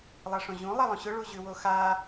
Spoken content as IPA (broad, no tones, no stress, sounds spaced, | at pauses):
lˠ a ʂ õ ʑ ũ lˠ a lˠ õ ɕ ʊ ɭ u ʑ ʉ w o x a